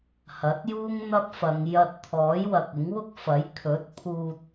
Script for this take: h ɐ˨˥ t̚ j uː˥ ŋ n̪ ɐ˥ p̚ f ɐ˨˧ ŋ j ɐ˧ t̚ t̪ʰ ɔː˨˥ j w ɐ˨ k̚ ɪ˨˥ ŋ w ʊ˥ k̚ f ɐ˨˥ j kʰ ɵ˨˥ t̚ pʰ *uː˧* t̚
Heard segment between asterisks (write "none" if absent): uː˧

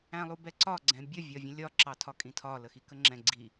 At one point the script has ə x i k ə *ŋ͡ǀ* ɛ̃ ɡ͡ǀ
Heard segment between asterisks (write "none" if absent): ŋ͡ǁ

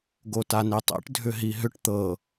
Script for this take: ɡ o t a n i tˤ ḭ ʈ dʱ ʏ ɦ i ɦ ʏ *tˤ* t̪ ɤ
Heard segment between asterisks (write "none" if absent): ʈ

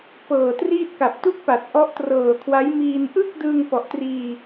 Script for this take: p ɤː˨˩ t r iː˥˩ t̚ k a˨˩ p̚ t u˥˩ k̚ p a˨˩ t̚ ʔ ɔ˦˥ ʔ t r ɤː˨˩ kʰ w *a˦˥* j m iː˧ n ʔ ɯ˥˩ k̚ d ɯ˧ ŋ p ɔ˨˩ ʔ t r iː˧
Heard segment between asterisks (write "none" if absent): a˦˥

